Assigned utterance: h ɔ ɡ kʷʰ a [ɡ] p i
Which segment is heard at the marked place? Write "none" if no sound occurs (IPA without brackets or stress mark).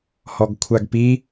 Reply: ɡ